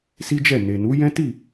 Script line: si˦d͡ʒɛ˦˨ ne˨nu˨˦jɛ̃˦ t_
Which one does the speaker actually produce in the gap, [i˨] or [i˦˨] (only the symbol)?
i˦˨